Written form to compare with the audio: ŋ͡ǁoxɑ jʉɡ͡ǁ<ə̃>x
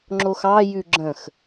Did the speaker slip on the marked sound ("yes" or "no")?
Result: no